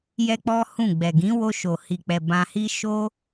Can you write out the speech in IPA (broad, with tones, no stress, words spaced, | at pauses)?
jɛ˦k͡pɔ˦hũ˦˨ ɡ͡bɛ˨ɡĩ˨˦wo˧ʃo˨ hi˨k͡pɛ˨ bã˧hi˦ ʃo˦